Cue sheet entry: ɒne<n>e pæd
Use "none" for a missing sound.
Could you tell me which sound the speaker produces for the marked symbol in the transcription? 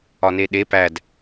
ɗ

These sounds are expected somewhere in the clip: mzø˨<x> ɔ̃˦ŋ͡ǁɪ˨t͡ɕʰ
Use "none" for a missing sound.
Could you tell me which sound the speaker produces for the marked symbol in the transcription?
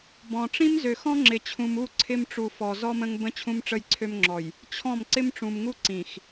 x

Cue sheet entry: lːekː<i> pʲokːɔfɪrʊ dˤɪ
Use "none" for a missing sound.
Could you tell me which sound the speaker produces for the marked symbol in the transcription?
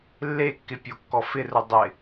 ɪ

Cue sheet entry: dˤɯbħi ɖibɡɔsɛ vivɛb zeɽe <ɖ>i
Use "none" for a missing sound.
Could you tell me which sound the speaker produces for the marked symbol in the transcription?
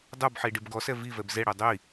dˤ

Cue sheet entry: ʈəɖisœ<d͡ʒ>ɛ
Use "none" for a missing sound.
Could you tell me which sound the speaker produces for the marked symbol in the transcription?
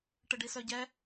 ɟ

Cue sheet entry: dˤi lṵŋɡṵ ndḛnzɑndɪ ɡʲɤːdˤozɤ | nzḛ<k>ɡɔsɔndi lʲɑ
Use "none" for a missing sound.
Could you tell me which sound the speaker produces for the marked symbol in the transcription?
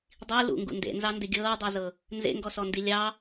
ŋ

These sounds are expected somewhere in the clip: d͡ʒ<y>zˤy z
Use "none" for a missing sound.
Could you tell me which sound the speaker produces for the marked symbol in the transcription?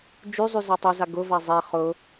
y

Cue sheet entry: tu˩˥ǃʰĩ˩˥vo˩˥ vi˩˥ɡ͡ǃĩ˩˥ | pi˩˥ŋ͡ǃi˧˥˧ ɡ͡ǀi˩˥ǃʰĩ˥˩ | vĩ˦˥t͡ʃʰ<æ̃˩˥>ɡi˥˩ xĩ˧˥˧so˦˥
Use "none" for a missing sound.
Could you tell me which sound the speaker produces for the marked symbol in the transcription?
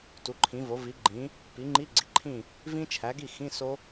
æ˩˥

